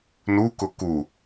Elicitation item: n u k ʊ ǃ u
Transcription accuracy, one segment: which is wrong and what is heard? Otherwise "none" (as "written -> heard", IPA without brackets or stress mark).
ǃ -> k